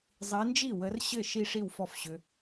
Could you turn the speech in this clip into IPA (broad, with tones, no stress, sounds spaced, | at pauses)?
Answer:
zˤ i˨˦ n d͡ʒ i˥˩ w ə˨˦ r ɕ ɘ˥˩ ʃ i˥˧ ʂ i˥˩ w f ɔ˥˧ f ɕ ʏ˨˦